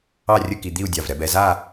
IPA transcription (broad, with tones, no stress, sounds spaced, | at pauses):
ɑ˥˧ rʲ ə˥˧ k i˧ d̪ i˥˧ u̯ dʲ ɑ˧˩ v ɾ ɛ˧ b ɛ˩˧ z a˥˧